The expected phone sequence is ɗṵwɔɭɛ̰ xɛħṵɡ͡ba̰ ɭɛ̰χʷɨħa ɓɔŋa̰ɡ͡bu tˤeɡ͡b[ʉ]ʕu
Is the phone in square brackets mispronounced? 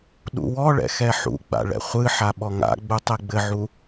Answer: yes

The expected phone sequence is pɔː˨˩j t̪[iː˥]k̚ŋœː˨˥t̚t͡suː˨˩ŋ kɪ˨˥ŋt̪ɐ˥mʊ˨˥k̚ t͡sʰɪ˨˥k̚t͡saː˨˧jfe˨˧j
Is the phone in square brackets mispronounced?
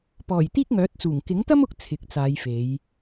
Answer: no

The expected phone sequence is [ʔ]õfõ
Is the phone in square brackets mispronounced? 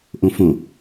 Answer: no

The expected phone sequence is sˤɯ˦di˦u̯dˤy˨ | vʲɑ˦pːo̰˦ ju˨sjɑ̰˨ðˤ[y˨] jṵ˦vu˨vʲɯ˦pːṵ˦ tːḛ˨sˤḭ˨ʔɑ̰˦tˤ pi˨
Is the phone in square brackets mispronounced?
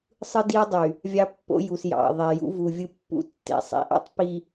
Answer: yes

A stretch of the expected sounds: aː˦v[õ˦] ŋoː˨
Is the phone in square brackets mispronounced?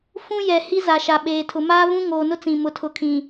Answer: yes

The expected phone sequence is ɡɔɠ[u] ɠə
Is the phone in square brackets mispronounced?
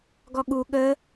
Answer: no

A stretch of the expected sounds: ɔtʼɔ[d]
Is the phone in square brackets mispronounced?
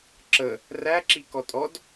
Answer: no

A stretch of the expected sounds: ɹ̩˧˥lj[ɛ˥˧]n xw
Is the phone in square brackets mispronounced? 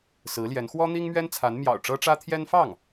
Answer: yes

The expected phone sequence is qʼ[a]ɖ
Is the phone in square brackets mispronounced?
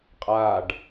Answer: no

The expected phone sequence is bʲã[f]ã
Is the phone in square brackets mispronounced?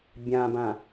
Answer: yes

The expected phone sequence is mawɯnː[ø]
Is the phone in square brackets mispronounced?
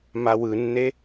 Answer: yes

